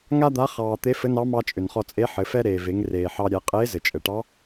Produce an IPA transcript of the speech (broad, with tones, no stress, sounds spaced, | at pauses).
ŋ a˥ d̪ a˧˥ χ ɑː˧ t̪ e˧˥ f ɘ˧˥ n ɑ˧˥ m ɑ˧ t͡ʃʼ ʏ˩ n χ ɔ˧ t͡sʼ e˧˥ ħ ɘ˩˧ f ɛ˥ ɾ eː˩ v e˩˧ ŋ r eː˩ ħ ɑ˧ ɾʲ ɛ˩˧ qʼ eː˧˥ z ɘ˩ t͡ʃʼ ɘ˩ ʈ ɑ˧˥